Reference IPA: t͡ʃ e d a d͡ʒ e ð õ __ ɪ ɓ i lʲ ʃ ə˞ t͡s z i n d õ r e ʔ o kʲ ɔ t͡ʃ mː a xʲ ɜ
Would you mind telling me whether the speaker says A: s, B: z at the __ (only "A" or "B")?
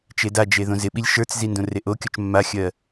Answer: B